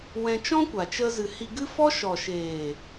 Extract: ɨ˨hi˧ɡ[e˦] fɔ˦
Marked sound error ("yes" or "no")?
yes